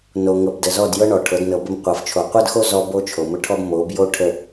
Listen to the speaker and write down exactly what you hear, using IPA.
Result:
n o˨ ŋ ɤ˨ b d ə˨ z ɔ˦˨ d j ɤ˦ ɳ ɔ˨ ʈʰ ɤ˨˦ d n ɤ˨ b ə˦ m qʷ ɤ˨ f t͡ʃʰ o˨ qʷ ɤ˦ d x o˦ z ɔ˦ b o˦ t͡ʃʰ o˨ m ə˦ ʈʰ ɔ˦ b m o˨˦ b j o˦ ʈʰ ə˨

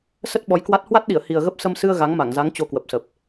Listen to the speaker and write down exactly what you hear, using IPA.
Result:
s ə˦˥ t̚ ɓ ɔ˨˦ j k w a˦˥ t̚ h w a˦˥ t̚ ɗ i˧˩ ə̯ h i˨˩ ə̯ ɣ ə˦˥ p̚ s ə˧ m s ɨ˧ ə̯ ɣ a˨˦ ŋ m a˧˩ ŋ z a˨˦ ŋ t͡ɕ o˧ k w ə˨˩ p̚ s ə˨˩ p̚

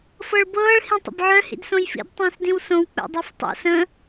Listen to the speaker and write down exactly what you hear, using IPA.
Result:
f ɤ ɭ b ɤː ɭ h ĩ tˤ ə̰ b ʕ œ h ḭ d s õ j f ḭ d tˤ ĩː s d ĩ w s õ w k͡p ɛ̰ dˤ ɛ f tˤ o̰ s ə̃

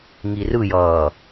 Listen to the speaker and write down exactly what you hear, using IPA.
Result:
ŋ i r ɯ j ʌː

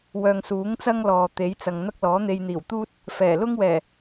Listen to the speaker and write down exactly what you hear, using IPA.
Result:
w œː˨ ŋ s uː˨˥ ŋ t͡s ɐ˥ ŋ l ɔː˨ t̪ e˨˥ j t͡s ɐ˨ ŋ n̪ ɐ˥ k̚ l ɔː˨˥ n̪ e˧ j n̪ iː˨˩ w t̪ uː˥ t̚ | f ɛː˨˩ l ʊ˥ ŋ w ɛː˨˩

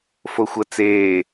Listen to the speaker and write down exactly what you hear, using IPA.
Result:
f o xʷ ɐ t͡s eː

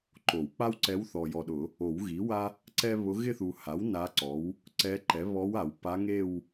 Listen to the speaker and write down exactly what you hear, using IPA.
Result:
ǃ o˨˩˦ w k͡p a˥ w ǀ ɛ˧˥ w θ ɔ˨ j ɔ˨ ɗ ʊ˨˩˦ | o˨˩˦ w ɣ i˩˥ w a˥ | ǀ ɛ˥ β ʊ˧˥ ɣ ɪ˥˧ θ u˨ h a˩˥ w n a˧˥ ǀ ɔ˩˥ w | ǀ ɛ˧˥ ǃ ɛ˩˥ β ɔ˧˥ w a˨˩˦ w p a˧˥ ŋ e˥˧ w

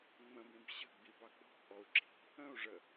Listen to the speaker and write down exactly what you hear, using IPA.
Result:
ŋ͡m ə̃ b ĩ b ɕ ə̤ ɡ͡b i b ɑ ɡ͡b ɔ̤ b ʔ ɔ u̯ ǁ i̤ | ə̃ u̯ ʐ ə

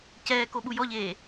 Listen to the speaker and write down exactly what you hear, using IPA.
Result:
c ɛː k o ɓ u j ɔ ʎ eː

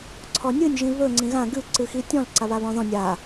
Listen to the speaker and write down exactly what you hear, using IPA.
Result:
ǀʰ ɔ nʲ ɨ nʲ ʒ ĩ β ɵ ŋ͡ǀ ĩ ɣ ã ɡ ɨ ǀ ɨ x i tʲ ɔ̃ l ǀ a β a β ɔ̃ ð ɔ̃ nʲ a

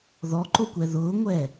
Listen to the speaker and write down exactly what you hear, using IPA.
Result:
ð ɔ ǃ o kʷ ɛ ð ʊː ŋʷ ɛ

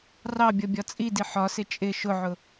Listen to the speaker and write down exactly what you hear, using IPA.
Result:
r ɑ bʲ ʌ bʲ ɒ t͡sʼ i d i ħ ɒ s ɪ t͡ʃʼ ɪ ʃ ʊ ʕ ʊ

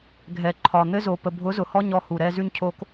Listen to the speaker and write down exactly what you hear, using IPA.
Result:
ɡʱ ɛ˨ ǃʰ ɒ˨ n̪ ɘ˦ z o˨ p ə˨ bʱ ʊ˨˦ z ʊ˨ h ɔ˧ ɲ ɔ˧ h u˨ ɾ ɛ˧ z ʉ˧ ɲ cʰ o˧ k

